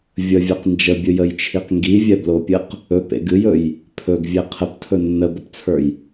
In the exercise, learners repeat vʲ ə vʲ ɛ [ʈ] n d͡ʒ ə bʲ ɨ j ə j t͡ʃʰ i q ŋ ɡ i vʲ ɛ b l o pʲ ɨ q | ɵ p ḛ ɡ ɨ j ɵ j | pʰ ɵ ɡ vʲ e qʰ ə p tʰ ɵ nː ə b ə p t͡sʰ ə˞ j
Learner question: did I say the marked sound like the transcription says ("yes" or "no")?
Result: no